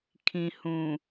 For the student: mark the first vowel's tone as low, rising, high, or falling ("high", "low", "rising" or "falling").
low